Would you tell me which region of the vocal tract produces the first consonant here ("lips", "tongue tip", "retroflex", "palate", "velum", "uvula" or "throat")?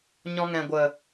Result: palate